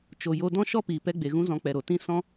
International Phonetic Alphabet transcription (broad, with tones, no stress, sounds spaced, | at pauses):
t͡ʃ o˨ j o˧ d ɔ̃˦ ʃ ɔ˦ p iː˨ p ɛ˧ ɡ͡b e˨ ɣ ũ˧ z ɔ̃˨˦ k͡p ɛ˨ ɾ o˨ t ĩ˧ s ɔ̃˦